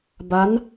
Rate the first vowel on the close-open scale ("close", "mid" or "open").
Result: open